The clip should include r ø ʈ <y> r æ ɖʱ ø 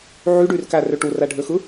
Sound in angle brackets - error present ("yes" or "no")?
yes